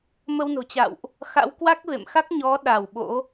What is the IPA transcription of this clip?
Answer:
m ə˧ w n o̤˨˩ t͡ɕ a̰˧˨ w ʔ | x a̰˧˥ w k w a˦˥ k̚ v ḛ˧˨ m x a˦˥ k̚ ɲ ɔ˨˦ ɗ a˧˩ w ɓ o̰˧˥

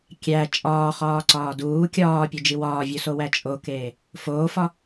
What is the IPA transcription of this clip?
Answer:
kʲ æ t͡ʃʼ ɒː χ ɒː ǀ ɒː d uː kʲ ɒː pʲ u d͡ʒ i w ɒː vʲ u s o w æ t͡ʃʼ o k eː | f oː f ɒ

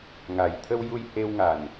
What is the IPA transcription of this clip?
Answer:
ŋ a˨˩ j t̪ʰ ə˧ w j u˧ j h e˧ w ŋ a˨˩ n

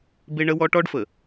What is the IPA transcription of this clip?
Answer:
b e˦ ɳ ə˦ w ɔ˦ ʈ ɔ˦ ɖ f ə˨

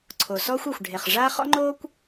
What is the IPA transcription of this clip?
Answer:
ǀʰ o˩ s ɔː˥ xʷ ɤ˩ xʷ ɖʱ e˩ χ ʐ a˥ χ ɔ̰˥ ŋ͡ǃ oː˥ kʷ

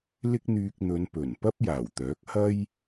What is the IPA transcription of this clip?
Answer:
l ɪ˥ k̚ n̪ yː˧ k̚ n̪ ɵ˨˧ n p ɵ˨˩ n p ɐ˥ p̚ j aː˨˩ w t̪ œː˨˥ k̚ h ɐ˥ j

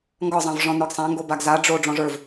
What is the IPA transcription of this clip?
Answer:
ŋ ɡ ɒ zˤ ã v ʐ ɔ̃ n ə˞ ɡ sˤ ã ŋ ɡ o b a ɡ z a ɖ͡ʐ o ɖ͡ʐ ɔ̃ ʐ ə˞ v

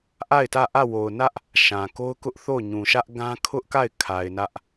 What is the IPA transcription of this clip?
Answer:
ʔ a˦˨ ɪ̯ t ä˦˨ ʔ ä˦˨ w o˨ ʊ̯ n ä˦ ʔ | ʃ ã˨ k o˦ ʊ̯ k ʊ˦ ʔ θ o˦˨ ʊ̯ ɲ ũ˨ ʃ ä˦ ʔ ɡ ã˦ kʰ ʊ˦ ʔ k a˦˨ ɪ̯ kʰ a˨ ɪ̯ n ä˦ ʔ

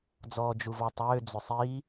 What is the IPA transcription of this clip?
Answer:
d͡z ɔː d͡ʒ u v ɔ tˤ ʏː d͡z ʏ sˤ i

